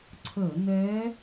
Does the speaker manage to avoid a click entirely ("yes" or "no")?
no